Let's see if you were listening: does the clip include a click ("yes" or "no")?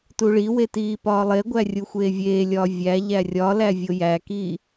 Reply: no